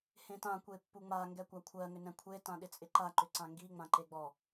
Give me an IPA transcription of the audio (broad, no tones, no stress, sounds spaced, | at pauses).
h ẽ t ã kʷ e pː u ŋ͡m a ŋ ɡ ɛ kʷ a kʷʰ ɜ ŋ ʏ n ɛ̃ kʷʰ e t ã ɗ ɪ t͡sʼ ɪ ǃ a ǃ ʏ ǀ ã ŋ ɡ i ŋ͡m ã ǃ e ɡ͡b ɔ